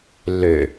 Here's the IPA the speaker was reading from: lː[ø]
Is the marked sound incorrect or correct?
correct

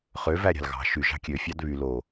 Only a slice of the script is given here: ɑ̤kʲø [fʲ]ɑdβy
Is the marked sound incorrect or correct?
correct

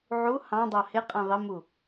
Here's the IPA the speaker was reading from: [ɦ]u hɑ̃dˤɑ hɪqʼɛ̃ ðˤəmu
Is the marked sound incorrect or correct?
incorrect: ʕ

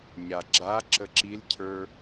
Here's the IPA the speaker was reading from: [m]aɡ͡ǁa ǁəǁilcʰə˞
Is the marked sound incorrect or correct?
incorrect: ɲ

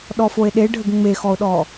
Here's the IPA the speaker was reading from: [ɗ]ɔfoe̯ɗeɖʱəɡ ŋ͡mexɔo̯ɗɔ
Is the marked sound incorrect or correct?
correct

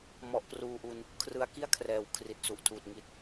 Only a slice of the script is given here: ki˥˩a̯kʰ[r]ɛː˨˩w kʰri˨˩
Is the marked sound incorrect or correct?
correct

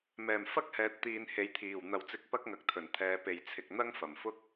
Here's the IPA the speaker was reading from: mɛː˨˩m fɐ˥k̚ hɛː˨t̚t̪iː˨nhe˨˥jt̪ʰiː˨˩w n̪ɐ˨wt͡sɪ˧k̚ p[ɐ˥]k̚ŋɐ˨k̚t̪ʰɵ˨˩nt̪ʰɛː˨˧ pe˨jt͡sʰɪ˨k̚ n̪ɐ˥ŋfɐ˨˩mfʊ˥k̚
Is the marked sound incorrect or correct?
correct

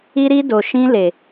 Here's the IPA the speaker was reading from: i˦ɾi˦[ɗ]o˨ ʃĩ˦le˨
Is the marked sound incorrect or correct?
incorrect: d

